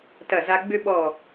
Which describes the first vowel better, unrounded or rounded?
unrounded